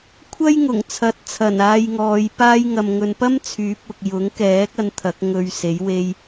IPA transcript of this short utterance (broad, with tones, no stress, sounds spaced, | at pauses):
kʷʰ ɐ˥ j ŋ ʊ˨˩ ŋ t͡sʰ ɐ˨˥ t̚ t͡sʰ ɐ˨˩ n aː˧ j ŋ ɔː˨˧ j p aː˥ j ŋ ɐ˧ m ŋ ɵ˧ n p ɐ˥ m t͡sʰ yː˨˥ p̚ ʊ˨ k̚ j ʊ˨˥ ŋ k ɛː˨˥ k̚ ɐ˧ n t̪ʰ ɐ˨˥ k̚ ŋ ɵ˧ ɥ s e˨˥ j w e˥ j